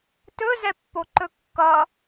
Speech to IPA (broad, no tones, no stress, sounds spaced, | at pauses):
t ɵ z ɛ pː o ǃ ɵ kː ʌ